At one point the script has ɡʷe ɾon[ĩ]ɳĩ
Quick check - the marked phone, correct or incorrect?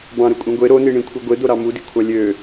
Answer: incorrect